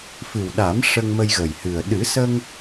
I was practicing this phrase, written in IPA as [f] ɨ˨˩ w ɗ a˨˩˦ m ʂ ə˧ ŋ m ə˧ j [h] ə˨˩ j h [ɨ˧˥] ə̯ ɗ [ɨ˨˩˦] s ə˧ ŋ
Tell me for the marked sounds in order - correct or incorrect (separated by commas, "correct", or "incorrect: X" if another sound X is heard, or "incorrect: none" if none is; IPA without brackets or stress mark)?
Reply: correct, incorrect: ɣ, incorrect: ɨ˨˩, correct